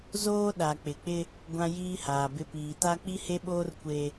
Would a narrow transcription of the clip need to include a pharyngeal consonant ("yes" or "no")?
no